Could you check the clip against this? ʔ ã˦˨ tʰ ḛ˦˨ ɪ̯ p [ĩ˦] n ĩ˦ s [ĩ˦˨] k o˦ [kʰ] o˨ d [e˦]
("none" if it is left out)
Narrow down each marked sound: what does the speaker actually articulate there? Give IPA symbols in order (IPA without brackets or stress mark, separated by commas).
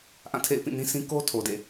ĩ˦˨, ĩ˦, tʰ, ḛ˦˨